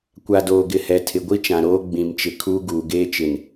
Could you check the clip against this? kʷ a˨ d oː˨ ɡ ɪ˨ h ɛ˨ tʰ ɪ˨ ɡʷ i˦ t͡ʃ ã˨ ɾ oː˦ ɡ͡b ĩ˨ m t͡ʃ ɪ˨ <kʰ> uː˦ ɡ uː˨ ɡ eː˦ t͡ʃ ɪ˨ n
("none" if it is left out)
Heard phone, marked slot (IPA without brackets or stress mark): kʰ